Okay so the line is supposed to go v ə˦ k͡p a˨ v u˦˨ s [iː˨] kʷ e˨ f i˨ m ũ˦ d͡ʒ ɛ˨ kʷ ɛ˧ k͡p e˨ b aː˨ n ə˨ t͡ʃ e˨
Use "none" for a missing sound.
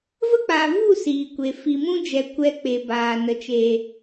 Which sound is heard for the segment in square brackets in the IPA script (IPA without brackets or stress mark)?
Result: iː˨